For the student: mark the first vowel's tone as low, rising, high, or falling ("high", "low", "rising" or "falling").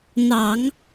low